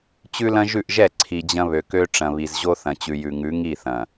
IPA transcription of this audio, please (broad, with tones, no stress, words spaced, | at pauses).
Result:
t͡ɕʉ˦lɐ̃˦ʒʉ˦˨ʔʒɛ˦˨ ǀʰi˨d͡ʑɐ̃˦βø˨kø˦ ʈ͡ʂɐ̃˨βi˨zʑo˦ θɐ̃˨t͡ɕʉ˨jʉ˨ŋʉ˨˦ ŋi˦˨θɐ̃˨